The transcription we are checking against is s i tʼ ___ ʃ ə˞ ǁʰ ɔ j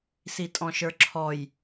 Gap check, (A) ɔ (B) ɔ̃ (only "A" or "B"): B